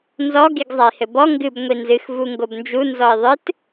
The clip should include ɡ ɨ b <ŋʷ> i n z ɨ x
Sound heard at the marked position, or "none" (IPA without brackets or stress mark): ŋʷ